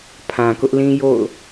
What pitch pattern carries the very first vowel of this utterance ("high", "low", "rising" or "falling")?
low